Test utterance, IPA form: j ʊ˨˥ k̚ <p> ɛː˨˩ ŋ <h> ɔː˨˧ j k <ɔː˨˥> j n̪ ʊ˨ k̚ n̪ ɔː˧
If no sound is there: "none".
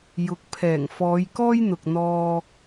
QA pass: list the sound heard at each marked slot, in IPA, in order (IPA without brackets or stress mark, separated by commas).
pʰ, f, ɔː˥